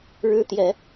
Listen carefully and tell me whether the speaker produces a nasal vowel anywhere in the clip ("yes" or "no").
no